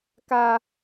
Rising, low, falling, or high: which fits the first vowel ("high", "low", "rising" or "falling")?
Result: high